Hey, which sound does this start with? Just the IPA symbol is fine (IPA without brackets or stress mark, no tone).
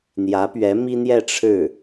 n̪